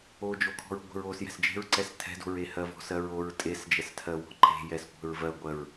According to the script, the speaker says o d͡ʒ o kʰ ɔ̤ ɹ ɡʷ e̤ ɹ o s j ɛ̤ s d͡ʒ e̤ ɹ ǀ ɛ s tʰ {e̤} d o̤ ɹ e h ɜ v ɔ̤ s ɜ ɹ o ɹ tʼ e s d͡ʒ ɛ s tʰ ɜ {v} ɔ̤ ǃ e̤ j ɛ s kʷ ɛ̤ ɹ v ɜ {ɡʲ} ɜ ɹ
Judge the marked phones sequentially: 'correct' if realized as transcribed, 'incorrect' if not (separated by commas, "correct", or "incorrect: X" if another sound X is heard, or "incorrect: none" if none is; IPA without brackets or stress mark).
incorrect: ɛ̤, incorrect: w, incorrect: ɡʷ